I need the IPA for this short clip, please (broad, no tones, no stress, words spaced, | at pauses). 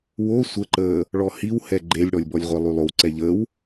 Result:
wo sʷəǃəː | ɭɔhiwhɛ ɡ͡ǃelʲɽɔlʲbɔlʲʁʷɛ lˠylˠowǀɛ ʎəw